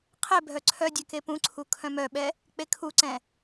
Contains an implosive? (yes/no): yes